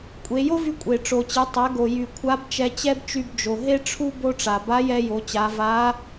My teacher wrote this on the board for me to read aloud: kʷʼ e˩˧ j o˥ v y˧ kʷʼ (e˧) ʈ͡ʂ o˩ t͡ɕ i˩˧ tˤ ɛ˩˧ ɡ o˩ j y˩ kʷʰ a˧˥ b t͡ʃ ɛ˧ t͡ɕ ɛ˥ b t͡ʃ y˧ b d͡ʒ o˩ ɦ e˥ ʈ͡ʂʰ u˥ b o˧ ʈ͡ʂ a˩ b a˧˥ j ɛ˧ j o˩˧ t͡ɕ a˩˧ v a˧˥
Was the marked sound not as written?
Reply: yes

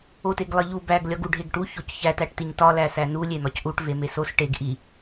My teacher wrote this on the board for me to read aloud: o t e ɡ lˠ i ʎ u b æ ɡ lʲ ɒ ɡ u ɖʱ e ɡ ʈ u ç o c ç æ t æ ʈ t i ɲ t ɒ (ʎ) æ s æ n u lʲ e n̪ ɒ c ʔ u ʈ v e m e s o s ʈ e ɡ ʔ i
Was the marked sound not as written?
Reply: yes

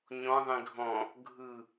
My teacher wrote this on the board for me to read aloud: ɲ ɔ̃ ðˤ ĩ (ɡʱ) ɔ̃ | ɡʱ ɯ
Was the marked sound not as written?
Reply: no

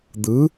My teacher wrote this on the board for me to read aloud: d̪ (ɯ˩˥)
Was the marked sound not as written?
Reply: no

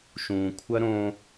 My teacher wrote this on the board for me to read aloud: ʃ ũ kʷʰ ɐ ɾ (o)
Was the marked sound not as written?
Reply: yes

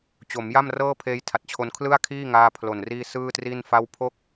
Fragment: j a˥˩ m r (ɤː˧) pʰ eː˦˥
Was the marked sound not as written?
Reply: yes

